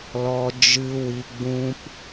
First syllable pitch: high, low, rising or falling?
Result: low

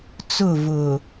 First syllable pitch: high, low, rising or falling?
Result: falling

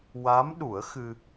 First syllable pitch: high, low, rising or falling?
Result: rising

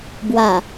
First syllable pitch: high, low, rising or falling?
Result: low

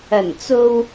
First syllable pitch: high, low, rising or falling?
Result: low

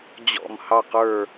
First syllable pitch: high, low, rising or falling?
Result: falling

